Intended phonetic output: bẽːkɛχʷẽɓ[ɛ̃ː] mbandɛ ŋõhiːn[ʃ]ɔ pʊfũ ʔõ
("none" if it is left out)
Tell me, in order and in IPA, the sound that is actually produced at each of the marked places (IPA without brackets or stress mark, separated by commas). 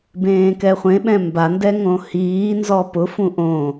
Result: ɛ̃, z